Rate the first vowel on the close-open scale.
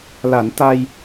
open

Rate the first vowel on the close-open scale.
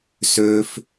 mid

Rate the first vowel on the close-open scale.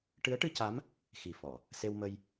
close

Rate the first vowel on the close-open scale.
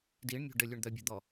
close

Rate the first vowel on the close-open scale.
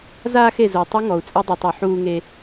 open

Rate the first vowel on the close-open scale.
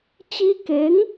close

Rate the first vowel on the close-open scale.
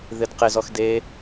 close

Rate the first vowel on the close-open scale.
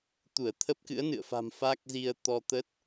close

